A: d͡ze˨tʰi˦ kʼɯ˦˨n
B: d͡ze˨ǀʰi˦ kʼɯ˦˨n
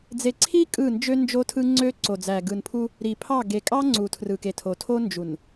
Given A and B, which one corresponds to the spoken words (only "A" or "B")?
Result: B